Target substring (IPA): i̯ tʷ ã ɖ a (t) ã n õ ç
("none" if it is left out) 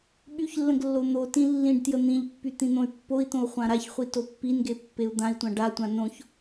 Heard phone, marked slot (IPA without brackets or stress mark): tʷ